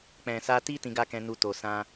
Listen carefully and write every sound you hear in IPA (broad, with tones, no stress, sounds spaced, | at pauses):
k͡p ɛ̃˨ s a˧ t i˦ t ĩ˧ ɡ a˦ k ɛ̃˧ n u˧ t o˨ s ã˧